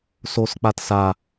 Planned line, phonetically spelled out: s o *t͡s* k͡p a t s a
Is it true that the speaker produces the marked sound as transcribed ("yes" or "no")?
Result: no